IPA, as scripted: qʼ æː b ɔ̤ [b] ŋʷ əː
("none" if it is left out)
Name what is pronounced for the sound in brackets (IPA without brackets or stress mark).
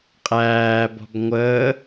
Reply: b